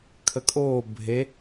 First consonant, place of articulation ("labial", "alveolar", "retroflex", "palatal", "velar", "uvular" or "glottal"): velar